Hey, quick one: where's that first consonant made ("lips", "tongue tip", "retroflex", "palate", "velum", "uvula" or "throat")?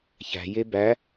palate